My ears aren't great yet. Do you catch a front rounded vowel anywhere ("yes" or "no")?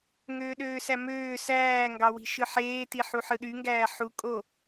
yes